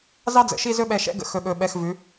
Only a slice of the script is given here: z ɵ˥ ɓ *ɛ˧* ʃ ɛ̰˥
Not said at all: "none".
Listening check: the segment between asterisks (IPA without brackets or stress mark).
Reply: ɛ˧